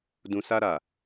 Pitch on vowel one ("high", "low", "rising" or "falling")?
low